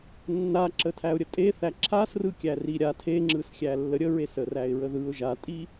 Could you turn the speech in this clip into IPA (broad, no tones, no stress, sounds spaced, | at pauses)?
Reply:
nː a ǁ ə tʰ æ ʊ̯ ɾʲ ə tʼ e θ æ ǁʰ a s r ɯ kʲ æ r i ɾʲ a tʰ e ŋ͡ǁ ɯ s xʲ æ lː ə ɾʲ ə ɹ e s ə r æ ɪ̯ ɹ ə ð ɯ ʊ̯ ʒ a tʼ i